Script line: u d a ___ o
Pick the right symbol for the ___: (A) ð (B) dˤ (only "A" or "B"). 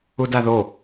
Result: A